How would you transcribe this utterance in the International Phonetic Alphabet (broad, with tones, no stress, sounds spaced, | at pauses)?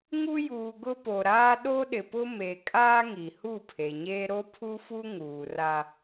ŋ u˦ j uː˨ ɡ ʊ˦ p o˨ ɾ aː˦ ɗ o˦ ɗ ɪ˨ p ʊ˦ m e˨ kʼ aː˦ ŋ i˨ h u˦˨ pʰ e˨ ɲ eː˦ ɾ o˦ pʰ u˦ f u˦ ŋ uː˨ r a˦